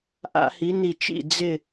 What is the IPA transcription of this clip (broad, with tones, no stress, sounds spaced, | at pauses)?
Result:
ʔ a̰˧˩˧ h i˨˦ n i˧˩ t͡ʃ ḭ˧˩ d͡z ɪ˥˨